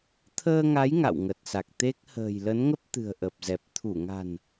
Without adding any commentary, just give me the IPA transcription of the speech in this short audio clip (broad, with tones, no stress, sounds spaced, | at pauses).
t̪ʰ əː˧ ŋ a˨˦ j ŋ a̰˧˨ w ŋ ə˨˩ t̚ s a˨˩ k̚ t̪ e˦˥ k̚ h ə̤ː˨˩ j l ə˨˦ n ŋ ə˦˥ p̚ t̪ ɨ̤˨˩ ə̯ ʔ ə˨˩ p̚ z ɛ˨˩ p̚ t̪ʰ u˧˩ ŋ a̤˨˩ n